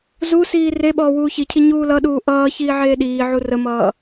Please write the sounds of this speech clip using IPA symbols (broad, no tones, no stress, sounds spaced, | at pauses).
z u s iː r e ɓ ɔː w uː ç i cʰ i ɲ uː l ʌ ɗ uː ʔ ʌː ç iː ʕ eː ɗ iː ʕ u r ə m ʌː